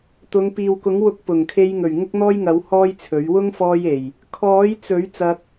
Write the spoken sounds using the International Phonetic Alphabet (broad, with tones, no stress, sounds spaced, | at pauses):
t̪ ʊ˨˧ ŋ p iː˨ w k ʊ˨˥ ŋ w ʊ˧ k̚ p ʊ˨˩ ŋ kʰ e˧ j ŋ ɵ˨˩ ɥ ŋ ʊ˥ k̚ n̪ ɔː˥ j ŋ ɐ˨˥ w h ɔː˥ j t͡sʰ ɵ˨˥ ɥ w ʊ˥ ŋ f ɔː˧ j e˨˩ j | kʰ ɔː˨˥ j t͡s ɵ˨˥ ɥ t͡s ɐ˧ k̚